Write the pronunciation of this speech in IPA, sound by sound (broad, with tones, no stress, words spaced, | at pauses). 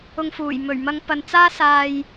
ʊ˧ŋfuː˨˩j mɵ˨˩ɥmɐ˧ŋ pɐ˨nt͡saː˥ saː˨j